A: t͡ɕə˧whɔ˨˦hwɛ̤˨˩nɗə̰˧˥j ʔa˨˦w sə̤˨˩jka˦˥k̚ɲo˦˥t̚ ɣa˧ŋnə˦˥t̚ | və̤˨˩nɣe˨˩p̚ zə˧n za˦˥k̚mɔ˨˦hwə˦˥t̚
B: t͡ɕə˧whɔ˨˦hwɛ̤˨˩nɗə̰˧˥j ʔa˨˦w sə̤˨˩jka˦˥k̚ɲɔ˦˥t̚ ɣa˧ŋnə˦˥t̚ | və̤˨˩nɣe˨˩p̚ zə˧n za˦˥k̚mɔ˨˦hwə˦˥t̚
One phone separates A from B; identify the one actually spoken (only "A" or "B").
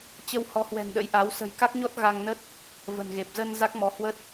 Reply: B